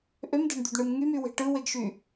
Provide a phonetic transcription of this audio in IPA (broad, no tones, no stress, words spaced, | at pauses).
ʔømdæ̤ɳd̪ydɳɯm ŋymywe̤ ʈɯweɡʃy